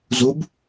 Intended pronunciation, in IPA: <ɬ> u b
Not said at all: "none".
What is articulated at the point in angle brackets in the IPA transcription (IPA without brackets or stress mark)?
z